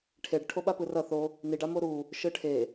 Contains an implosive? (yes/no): yes